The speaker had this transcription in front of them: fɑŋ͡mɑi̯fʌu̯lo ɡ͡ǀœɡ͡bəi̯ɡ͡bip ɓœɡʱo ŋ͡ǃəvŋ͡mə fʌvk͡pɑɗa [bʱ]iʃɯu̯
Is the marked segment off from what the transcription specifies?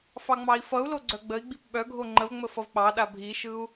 no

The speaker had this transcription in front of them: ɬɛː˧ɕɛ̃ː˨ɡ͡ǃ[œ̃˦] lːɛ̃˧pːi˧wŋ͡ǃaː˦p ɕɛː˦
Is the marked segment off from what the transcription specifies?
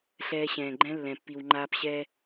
yes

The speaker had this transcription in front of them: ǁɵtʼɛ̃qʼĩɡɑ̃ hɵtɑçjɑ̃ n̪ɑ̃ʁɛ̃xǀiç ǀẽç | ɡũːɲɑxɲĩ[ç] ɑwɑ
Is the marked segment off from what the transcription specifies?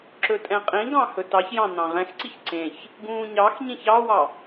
no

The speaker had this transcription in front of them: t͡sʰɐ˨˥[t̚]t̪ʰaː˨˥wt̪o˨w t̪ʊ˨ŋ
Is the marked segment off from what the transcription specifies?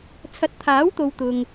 no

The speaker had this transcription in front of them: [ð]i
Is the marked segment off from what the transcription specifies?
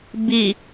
yes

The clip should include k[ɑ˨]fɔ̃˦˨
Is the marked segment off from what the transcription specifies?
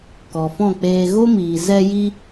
yes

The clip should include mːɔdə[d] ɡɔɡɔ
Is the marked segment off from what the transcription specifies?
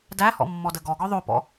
yes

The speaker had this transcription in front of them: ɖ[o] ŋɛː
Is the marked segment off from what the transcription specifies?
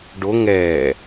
no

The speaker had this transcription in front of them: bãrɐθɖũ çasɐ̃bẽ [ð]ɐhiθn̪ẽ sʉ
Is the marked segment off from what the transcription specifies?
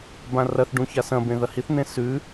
no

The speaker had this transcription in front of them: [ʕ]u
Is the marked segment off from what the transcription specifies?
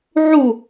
no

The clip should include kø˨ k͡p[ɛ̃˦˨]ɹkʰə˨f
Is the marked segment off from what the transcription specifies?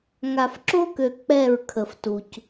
yes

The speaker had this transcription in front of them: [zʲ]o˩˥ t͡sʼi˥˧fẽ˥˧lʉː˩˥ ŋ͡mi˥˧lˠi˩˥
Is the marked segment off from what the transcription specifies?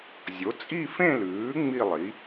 no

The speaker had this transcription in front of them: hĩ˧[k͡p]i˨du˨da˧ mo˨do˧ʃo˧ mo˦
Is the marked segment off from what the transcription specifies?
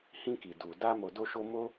yes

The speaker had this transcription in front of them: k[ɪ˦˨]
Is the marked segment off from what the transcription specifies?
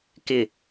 no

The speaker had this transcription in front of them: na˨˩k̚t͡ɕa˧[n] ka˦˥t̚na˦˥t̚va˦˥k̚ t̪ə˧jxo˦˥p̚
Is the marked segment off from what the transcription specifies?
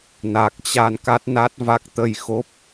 no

